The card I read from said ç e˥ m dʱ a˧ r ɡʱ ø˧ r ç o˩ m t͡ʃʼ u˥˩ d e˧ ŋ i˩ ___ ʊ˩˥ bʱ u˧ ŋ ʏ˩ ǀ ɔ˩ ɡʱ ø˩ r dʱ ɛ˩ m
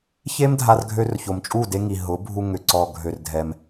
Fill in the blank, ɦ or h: ɦ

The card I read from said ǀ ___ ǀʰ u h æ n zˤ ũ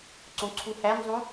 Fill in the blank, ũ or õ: õ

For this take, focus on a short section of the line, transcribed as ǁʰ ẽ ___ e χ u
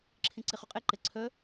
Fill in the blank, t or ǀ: ǀ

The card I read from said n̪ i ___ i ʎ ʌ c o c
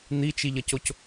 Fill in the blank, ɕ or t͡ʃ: t͡ʃ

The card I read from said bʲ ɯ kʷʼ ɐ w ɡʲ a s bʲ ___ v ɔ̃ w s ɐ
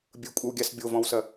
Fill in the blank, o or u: o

